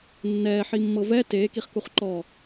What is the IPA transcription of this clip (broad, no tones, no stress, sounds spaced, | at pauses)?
nː ɛː ħ i mː ɤ v ɛ t eː k i χ k u χ ǃ ɔ